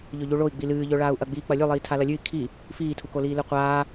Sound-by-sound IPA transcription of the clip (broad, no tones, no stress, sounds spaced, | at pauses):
ʎ ɵ ʎ u ɭ o i̯ ɡ͡b i l ɨː ʎ ɵ ɭ aː u̯ ʔ ɐ ɡ͡b iː k͡p ɐ lʲ ʉ lˠ iː tʰ a l ɐ lʲ ʉ i̯ kʰ i | f iː tʰ u k o l iː l ɨ qʷ aː